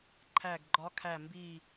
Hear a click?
yes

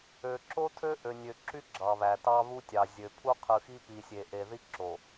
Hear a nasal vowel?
no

